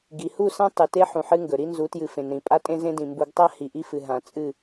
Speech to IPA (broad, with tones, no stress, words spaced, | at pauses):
ɡi˨hu˦˨sã˦ tˤɨ˨te˦ ħũ˨ħɨ˦ŋɡɵ˨ ɾi˦nzu˨˦tjɨ˨ fẽ˨nɾĩ˨ pʼa˦tʼẽ˦zẽ˦dĩ˨ mbu˨ɡtˤa˦ hi˨ʔi˦fɨ˨ ɦã˨ t͡sʼɨ˦˨